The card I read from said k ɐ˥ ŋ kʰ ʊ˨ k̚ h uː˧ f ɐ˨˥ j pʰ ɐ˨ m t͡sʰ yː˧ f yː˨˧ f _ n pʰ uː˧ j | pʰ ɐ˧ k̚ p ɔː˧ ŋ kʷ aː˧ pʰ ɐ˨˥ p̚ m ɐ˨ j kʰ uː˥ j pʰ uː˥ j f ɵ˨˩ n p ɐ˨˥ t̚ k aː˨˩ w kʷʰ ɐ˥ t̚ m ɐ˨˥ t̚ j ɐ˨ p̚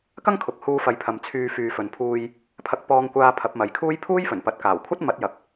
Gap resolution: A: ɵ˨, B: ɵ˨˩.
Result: A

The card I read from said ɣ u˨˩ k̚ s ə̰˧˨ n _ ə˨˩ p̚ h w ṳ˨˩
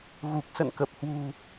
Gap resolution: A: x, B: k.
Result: B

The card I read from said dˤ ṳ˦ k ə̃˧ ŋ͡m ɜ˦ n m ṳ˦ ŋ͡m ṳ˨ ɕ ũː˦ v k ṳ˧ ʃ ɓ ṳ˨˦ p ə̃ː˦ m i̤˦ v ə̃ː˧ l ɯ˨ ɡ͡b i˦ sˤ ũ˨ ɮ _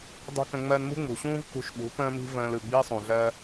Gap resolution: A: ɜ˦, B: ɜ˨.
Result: A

